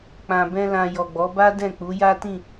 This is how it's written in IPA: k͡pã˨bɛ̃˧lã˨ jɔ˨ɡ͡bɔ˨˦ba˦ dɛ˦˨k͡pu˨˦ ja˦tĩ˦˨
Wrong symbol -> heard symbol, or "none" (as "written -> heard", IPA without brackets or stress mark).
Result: ɛ˦˨ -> ɛ̃˦˨